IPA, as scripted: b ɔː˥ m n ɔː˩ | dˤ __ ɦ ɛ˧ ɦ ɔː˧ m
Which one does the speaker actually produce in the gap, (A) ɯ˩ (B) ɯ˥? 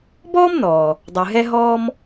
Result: A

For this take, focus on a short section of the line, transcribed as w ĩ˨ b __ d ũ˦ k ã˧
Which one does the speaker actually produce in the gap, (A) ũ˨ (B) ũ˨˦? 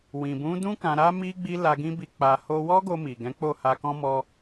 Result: B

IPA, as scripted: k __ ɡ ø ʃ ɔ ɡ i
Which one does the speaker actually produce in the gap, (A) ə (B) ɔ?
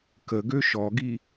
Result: A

